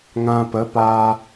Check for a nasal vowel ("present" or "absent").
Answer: present